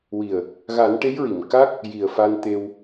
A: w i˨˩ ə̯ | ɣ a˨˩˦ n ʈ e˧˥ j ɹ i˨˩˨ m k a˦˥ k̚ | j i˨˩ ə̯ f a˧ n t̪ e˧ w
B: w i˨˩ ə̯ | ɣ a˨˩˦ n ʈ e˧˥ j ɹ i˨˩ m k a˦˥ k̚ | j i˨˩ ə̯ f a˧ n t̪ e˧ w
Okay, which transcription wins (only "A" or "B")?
A